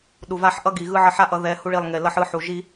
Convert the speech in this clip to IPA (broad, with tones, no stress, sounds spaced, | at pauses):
ɗ u˨ v a˦ ħ ʔ ʌ˦ ɡ i˨ ɣ ɯ˦ ʕ ʌ˦ ħ a˦ ʔ ʌ˨˦ ð ɛ˨˦ h u˦ ɭ i˦˨ lˠ ŋ e˨ l ʌ˦ ħ ɯ˦ ħ u˨ ʒ i˦